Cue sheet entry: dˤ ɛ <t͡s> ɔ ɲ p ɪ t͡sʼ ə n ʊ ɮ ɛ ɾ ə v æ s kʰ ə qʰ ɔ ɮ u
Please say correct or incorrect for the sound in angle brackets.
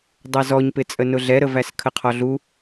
incorrect